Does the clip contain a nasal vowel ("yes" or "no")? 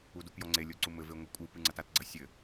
no